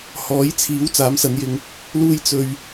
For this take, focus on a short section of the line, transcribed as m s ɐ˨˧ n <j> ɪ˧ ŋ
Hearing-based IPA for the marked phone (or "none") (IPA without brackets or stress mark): j